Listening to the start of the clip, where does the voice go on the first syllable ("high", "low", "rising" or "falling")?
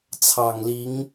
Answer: low